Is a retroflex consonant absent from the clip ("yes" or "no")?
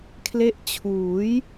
yes